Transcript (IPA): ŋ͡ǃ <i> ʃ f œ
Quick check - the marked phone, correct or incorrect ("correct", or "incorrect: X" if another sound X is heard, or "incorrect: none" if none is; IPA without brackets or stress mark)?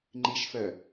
correct